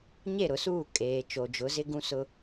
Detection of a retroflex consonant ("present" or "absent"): absent